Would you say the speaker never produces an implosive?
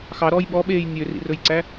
no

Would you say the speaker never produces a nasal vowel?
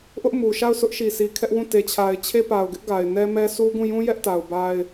no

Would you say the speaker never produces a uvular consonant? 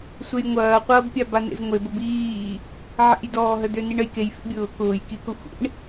no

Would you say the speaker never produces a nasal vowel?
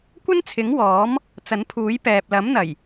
yes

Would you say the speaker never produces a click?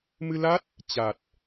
yes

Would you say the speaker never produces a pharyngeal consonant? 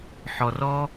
no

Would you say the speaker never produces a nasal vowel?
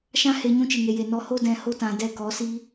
no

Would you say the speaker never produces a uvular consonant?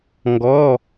yes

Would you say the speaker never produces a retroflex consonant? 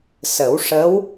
no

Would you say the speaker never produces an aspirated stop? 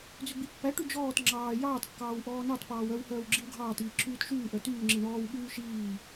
no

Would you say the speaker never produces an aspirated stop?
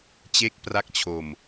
no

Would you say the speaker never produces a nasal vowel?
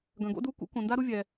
no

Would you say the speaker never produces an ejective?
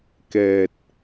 yes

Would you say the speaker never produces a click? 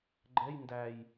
no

